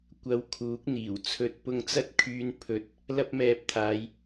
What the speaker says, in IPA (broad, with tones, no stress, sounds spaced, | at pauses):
kʷ ɐ˧ w kʰ uː˨˥ k̚ n̪ iː˨˩ w t͡sʰ ɵ˨˥ t̚ p ʊ˧ ŋ t͡s ɐ˥ t̚ kʰ yː˧ n pʰ ɵ˧ t̚ | l ɐ˥ p̚ m ɛː˧ p̚ t̪ʰ aː˨˧ j